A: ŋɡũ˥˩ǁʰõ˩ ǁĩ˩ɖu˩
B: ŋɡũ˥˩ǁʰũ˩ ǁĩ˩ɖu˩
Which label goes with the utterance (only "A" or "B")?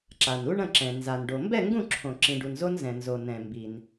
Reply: A